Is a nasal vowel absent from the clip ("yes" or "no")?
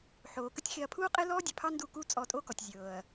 yes